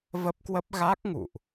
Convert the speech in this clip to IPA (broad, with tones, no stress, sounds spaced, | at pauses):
v ə˦˥ p̚ k w ə˦˥ p̚ ɣ a˦˥ k̚ ŋ ṵ˧˨ ʔ